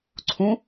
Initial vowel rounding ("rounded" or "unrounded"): rounded